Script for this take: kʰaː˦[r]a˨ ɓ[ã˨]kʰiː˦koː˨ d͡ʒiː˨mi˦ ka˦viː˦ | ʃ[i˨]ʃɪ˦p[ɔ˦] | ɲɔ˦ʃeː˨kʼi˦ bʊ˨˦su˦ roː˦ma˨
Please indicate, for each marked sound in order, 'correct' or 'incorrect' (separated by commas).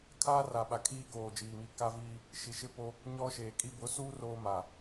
correct, incorrect, correct, incorrect